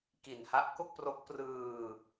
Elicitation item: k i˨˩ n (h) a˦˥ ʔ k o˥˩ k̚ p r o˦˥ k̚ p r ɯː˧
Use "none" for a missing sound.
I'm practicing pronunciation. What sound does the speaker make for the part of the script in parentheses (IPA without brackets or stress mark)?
h